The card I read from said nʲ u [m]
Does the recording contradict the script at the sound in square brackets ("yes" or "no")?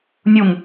yes